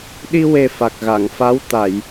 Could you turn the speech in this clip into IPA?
ɗ i˧ w e˨˩ f a˨˩ k̚ ɣ a˨˩˨ ŋ f a˧˥ w t̪ a˨˩˨ j

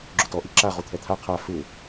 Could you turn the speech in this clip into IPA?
ɡ͡ǁ o t ɔ ʔ i ǁ a ʁ u t̪ʰ ɛ t̪ʰ a qʰ a f ɪ

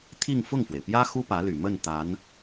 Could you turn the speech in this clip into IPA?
t̪ʰ i˥˧ ŋ f ʊ˥˩ ŋ f w e˩ ɪ̯ p j ä˥ x u˥ p ä˧˥ l y˨˩ m ə˥˩ n t̪ a˧˥ n

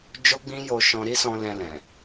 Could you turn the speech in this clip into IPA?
d͡ʒ o˦ ɡ͡b ĩ˦ j o˧ ʃ ɔ̃˧ ɾ i˦ s ɔ̃˧ l ɛ̃˧ l ɛ̃˨

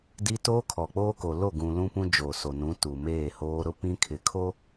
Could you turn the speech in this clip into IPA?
d i˦ t oː˦ kʰ ɔ˨ k͡p oː˦ k o˨ l o˦˨ ɡ ũ˨ l ũ˦ p ũ˦ d͡ʒ oː˨ s o˨ n ũ˨˦ t u˨ m eː˦˨ h oː˦ ɾ ʊ˦ p ĩ˦ kʰ ɪ˨ kʰ o˦

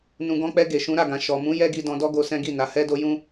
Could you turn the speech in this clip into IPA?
n ũ˨ ɡ ɔ̃˧ k͡p ɛ˧ ɡ e˨ ʃ ũ˨˦ ɾ a˦˨ ɡ ã˨ ʃ ɔ˨ m ũ˨˦ j ɛ˦ ɡ i˧ d ɔ̃˧ d ɔ˦ ɡ o˧ s ɛ̃˦ ɡ i˦˨ n a˨˦ h ɛ˦ d o˦ j ũ˦

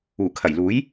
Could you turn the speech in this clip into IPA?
uː˨˩ kʰ ɐ˨˩ j l uː˨˥ j

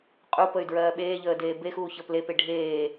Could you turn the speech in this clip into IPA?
qʼ u p ə y̯ d ɹ ɜː ɓ eː ʎ əː d eː b e x uː ç əː p l e p e ɖʱ eː

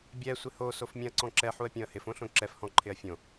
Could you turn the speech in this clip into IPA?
bʲ ɛ sʷ ɪ h o s o f mʲ ɛ̃ ɐ̯ ǀ ɔ̃ ǁ ɛ ħ u ɐ̯ pʲ õ ɐ̯ h ɪ f õ ɬ õ ǁ ɛ f h ɔ̃ ǃʰ ɪ ɐ̯ fʲ õ

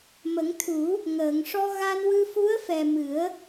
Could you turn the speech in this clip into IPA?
m ə˨˩˦ ŋ t̪ʰ u˨˩˦ | ŋ əː˨˩˨ ŋ ʂ ɔ˧ ɣ a˧ n w ɨ˧ f u˧˥ ə̯ f ɛ˨˩ m ɨ˨˩˦ ə̯

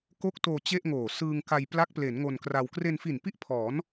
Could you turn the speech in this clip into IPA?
k o˦˥ k̚ t oː˧ t͡ɕ e˥˩ ʔ ŋ oː˨˩ s ɯː˧ ŋ k a˧ j p l a˦˥ k̚ p l e˩˦ n ŋ o˧ n k r a˧ w k r e˧ n f i˨˩ n p i˥˩ ʔ pʰ ɔː˩˦ n

